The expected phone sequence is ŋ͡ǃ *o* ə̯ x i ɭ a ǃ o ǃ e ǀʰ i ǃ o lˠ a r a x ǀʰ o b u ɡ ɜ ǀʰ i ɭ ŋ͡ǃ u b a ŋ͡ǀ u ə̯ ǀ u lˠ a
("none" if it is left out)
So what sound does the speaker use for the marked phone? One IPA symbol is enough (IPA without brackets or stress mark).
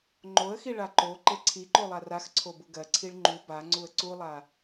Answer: o